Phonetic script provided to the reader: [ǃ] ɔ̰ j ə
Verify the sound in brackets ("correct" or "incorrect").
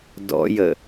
incorrect